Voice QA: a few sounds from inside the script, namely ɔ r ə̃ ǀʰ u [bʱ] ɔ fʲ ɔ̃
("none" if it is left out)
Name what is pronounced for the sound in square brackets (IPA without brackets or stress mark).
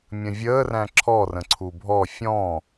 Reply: bʱ